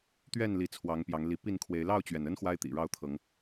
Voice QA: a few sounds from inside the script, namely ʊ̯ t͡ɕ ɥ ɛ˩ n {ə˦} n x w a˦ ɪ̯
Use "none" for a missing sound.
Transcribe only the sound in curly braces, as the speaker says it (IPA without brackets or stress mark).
ə˦